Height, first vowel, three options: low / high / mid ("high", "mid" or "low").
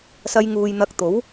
low